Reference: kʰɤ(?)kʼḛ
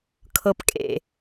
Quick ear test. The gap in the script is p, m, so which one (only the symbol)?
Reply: p